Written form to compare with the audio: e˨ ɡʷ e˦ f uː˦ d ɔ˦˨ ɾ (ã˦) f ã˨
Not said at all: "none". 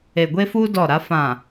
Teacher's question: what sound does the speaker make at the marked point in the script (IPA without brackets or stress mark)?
a˦